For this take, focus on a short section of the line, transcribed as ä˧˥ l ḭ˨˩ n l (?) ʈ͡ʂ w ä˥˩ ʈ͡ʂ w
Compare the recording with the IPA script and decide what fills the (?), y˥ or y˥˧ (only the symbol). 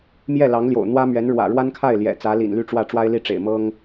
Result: y˥˧